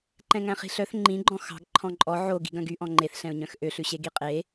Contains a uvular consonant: yes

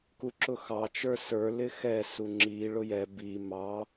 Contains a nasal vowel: no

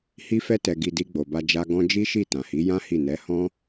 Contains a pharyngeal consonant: no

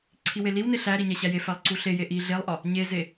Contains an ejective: no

